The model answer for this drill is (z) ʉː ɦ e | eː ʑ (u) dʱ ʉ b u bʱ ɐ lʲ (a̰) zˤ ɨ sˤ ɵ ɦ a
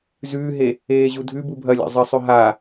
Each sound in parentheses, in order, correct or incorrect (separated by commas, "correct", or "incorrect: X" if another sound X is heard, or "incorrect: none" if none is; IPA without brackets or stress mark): correct, correct, correct